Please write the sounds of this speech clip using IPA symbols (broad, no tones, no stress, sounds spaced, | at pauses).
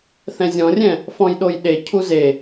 θ ɛ̃ zʲ ɔ̃ rʲ ɛ̃ | f ɔ̃ j ɗ o j ɗ e cʰ u z e